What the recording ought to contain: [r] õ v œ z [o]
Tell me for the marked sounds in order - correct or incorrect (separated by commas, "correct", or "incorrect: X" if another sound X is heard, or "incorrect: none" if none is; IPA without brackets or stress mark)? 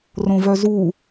correct, incorrect: u